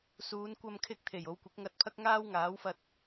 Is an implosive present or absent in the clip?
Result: absent